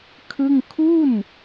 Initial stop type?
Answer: aspirated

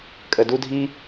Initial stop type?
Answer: ejective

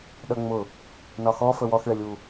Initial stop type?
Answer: implosive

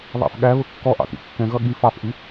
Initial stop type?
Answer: implosive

